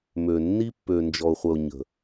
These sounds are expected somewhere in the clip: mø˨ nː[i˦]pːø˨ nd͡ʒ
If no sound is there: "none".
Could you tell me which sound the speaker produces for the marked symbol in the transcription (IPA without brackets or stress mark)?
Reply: i˦